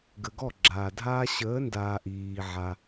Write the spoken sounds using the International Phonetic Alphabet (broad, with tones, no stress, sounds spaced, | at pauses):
ɡ ə˨ ɡ ɔ˦˨ ɡ͡ǁ aː˨ dʱ aː˦ ɕ əː˨˦ n d aː˨ ʔ iː˨ ʕ a˦